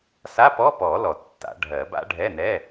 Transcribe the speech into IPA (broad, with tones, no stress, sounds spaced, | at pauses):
s a˧˥˧ p ɔ˧˥˧ p ɔ˨˩˦ l ɔ˨˩˦ tː a̰˨˩˦ ɖʱ ɜ˨˩˦ b a̰˦˥ ɖʱ ɛ˧˥˧ n ɛ˧˥˧